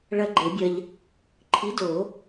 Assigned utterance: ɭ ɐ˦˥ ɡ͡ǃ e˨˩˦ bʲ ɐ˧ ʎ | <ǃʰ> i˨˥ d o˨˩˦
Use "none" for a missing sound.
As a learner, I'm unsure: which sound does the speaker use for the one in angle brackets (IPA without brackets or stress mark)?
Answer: ǃʰ